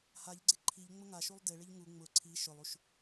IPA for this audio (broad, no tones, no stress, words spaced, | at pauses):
haʎɡ͡ǀɪ ǃʰiʎ ŋ͡mʊŋaʃulˠ dɪɭɪʎ ŋu ŋ͡mʊ ǀʰi ʃʊlˠuʃ